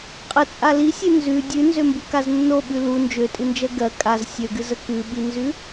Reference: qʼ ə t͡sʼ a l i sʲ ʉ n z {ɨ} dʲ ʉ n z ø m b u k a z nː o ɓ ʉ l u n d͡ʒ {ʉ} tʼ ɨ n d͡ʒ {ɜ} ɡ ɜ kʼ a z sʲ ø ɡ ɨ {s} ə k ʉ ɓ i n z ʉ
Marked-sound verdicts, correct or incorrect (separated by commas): incorrect, incorrect, correct, incorrect